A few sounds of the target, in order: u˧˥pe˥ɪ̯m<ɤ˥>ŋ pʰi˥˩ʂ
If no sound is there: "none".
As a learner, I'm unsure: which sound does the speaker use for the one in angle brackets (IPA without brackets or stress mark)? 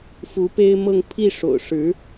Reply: ɤ˥˧